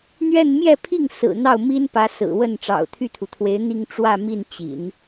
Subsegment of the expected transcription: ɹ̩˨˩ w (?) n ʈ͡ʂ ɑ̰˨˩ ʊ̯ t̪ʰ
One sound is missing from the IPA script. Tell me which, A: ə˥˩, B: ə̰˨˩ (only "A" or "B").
A